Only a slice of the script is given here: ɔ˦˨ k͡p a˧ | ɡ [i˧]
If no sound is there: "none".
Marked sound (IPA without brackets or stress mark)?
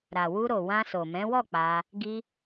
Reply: i˧